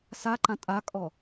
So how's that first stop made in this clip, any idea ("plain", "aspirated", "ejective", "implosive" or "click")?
click